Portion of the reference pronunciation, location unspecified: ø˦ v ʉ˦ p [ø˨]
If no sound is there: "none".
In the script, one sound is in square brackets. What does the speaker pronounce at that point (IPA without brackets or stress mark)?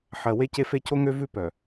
œ˨